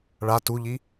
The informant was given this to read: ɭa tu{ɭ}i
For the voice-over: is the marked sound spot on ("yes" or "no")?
no